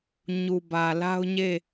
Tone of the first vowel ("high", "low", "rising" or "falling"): low